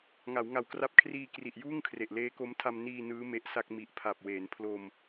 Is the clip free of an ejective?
yes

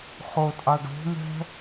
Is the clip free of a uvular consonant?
no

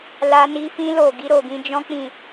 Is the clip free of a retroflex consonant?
yes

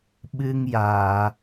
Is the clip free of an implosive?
no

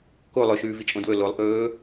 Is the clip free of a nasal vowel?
no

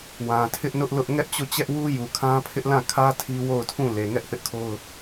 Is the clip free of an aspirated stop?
no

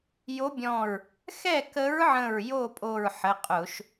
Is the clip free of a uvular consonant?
no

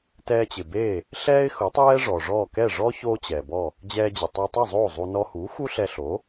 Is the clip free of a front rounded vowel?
yes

